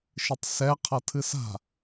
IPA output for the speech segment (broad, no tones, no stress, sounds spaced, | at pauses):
ʃ ɨ tˤ s ɛ qʰ ʌ tʰ ɨ s a̤